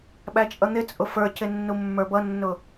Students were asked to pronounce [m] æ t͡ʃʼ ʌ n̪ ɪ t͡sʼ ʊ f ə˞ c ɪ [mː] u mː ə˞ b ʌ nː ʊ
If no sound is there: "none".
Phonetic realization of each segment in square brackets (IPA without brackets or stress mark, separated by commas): ɓ, nː